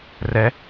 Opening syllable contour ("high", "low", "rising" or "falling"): rising